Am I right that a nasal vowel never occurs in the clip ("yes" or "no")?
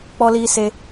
yes